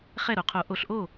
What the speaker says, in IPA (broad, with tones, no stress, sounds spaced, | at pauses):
χ ɛ˥˩ ɾ o˩˥ qʰ o˩˥ ʔ o˩˥ ɬ ʔ o˥˩